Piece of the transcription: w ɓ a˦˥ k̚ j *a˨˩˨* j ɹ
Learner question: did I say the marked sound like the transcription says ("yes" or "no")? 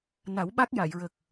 yes